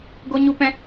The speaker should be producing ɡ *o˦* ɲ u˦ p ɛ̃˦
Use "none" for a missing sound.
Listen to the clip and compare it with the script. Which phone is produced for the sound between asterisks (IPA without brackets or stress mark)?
o˦